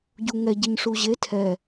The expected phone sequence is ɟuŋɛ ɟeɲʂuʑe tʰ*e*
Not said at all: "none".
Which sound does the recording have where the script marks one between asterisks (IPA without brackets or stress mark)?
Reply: ɛ